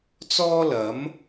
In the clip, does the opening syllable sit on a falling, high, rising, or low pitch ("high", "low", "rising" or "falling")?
high